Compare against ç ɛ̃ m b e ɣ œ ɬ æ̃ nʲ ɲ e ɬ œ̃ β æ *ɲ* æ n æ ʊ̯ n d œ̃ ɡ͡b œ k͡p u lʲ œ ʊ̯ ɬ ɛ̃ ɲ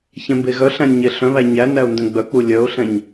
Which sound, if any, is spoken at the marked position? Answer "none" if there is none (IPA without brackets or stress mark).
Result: ɲ